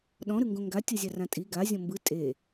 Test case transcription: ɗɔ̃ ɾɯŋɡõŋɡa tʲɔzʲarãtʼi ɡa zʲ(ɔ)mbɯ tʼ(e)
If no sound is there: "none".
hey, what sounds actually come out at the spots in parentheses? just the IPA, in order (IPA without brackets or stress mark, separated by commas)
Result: ɔ̃, e